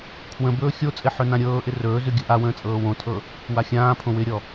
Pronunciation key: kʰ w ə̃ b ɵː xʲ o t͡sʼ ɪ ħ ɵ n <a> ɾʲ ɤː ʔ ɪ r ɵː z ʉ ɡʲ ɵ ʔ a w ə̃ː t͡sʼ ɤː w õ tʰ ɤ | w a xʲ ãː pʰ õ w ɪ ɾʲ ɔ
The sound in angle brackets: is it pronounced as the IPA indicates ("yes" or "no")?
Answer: no